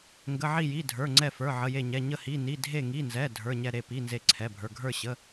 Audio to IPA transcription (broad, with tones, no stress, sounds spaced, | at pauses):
ŋ ɡ ə˩˧˩ ʕ i˧˩ j i˩˧˩ dʱ ə˞˩˧˩ ŋ͡ǀ ɛ˧˩ f ə˞˩˧˩ ʕ ə˩˧˩ j e˧˩ ɲ ɛ˩˧˩ ɲ ə˧˩ h i˩˧˩ n i˩˧˩ dʱ e˧˩ ŋ i˩˧˩ n z ɛ˩˧˩ dʱ ə˞˩˧˩ ɲ ɛ˧˩ ɾ e˧˩ p i˩˧˩ n z e˧˩ ǀʰ ɛ˩˧˩ bʱ ə˞˩˧˩ ɡʱ ə˞˧˩ ɕ ə˩˧˩